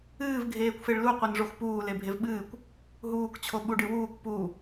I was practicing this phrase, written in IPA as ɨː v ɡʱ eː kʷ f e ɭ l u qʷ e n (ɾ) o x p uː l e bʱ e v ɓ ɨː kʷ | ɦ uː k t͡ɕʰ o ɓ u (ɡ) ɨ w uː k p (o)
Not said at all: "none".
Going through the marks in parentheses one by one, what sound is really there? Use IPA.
ʐ, ɖ, u

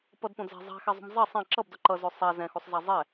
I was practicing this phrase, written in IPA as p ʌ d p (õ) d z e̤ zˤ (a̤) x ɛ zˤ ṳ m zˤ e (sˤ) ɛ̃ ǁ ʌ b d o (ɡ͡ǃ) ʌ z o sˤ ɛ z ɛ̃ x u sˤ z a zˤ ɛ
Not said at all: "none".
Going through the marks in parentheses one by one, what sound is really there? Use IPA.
õ, a̤, sˤ, ǃ

